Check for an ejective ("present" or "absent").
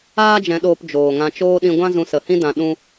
absent